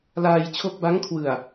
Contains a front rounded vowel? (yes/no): no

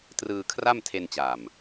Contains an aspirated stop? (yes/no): yes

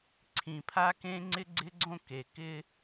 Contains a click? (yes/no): yes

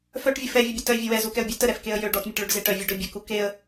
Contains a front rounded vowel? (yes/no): yes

